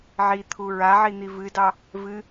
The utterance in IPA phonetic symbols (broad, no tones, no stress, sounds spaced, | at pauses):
ʕ i t̪ʰ u ɹ a ʕ i n̪ i v ɨ d ɑ | v ɨ